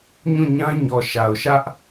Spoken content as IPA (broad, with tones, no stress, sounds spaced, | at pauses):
ɲ ũ˦˨ ɲ ã˦ ɲ ɔ˨ ʃ a˨ ʊ̯ ʃ ä˦ ʔ